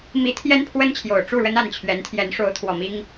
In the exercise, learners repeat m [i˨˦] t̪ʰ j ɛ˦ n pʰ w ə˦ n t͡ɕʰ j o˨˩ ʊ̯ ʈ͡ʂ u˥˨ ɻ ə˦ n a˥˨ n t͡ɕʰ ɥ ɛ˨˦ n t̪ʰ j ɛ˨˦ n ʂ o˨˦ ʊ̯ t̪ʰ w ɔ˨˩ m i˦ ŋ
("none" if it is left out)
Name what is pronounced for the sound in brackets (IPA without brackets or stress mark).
i˨˦